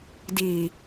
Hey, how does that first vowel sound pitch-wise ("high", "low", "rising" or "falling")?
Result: low